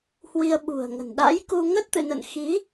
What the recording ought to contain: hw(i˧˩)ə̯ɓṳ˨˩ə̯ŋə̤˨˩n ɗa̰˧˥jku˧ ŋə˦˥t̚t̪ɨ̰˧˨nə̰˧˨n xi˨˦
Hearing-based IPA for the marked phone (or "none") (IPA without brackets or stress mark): i˧